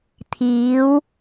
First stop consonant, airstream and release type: aspirated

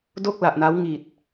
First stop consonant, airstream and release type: plain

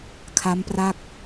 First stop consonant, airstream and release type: aspirated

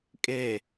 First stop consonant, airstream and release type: ejective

